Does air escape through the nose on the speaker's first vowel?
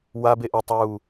no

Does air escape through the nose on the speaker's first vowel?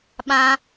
yes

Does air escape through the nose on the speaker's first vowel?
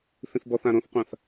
yes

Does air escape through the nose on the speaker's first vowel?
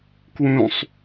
yes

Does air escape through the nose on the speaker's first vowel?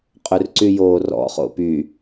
no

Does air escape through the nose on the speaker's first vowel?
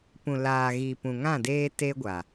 yes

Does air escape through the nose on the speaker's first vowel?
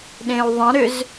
yes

